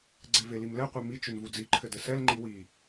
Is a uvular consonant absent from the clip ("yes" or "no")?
no